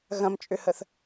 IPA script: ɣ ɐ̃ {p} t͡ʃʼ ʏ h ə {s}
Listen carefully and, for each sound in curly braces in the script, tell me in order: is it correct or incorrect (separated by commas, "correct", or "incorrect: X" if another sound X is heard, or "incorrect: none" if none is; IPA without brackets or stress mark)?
incorrect: m, incorrect: θ